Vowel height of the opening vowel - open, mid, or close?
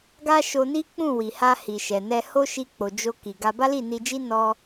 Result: open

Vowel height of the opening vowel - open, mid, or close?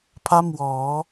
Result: open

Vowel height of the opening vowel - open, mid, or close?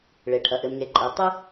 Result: mid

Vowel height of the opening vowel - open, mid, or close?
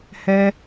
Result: mid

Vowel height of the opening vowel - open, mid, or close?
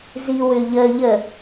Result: close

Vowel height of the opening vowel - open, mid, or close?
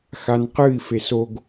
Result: open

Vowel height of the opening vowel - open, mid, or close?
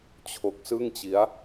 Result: mid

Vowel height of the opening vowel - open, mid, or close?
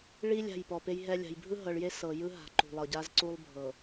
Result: close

